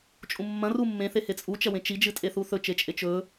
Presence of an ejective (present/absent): present